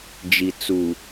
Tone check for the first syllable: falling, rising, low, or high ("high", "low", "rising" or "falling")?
low